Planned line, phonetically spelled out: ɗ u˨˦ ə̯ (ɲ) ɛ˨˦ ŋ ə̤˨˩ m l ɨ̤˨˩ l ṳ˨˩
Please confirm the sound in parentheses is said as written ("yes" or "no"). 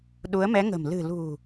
no